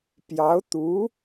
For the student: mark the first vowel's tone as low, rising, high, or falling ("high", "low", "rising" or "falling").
rising